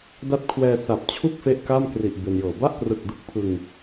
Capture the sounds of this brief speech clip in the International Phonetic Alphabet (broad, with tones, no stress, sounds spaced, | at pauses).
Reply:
d a˦˥ t̚ kʰ w ɛː˧ s a˨˩ p̚ t͡ɕʰ u˥˩ k̚ f e˥˩ ʔ k a˥˩ m k r i˨˩ ʔ b e˧ n j ɤː˨˩ b a˥˩ ʔ p r ɯ˨˩ k̚ d u˦˥ k̚ pʰ ɯ˧ ŋ